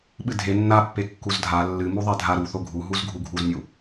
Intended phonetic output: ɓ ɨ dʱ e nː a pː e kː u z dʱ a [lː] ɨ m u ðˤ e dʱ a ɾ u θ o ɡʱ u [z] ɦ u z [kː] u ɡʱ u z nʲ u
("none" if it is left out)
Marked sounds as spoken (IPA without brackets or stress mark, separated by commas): lː, none, ɡʱ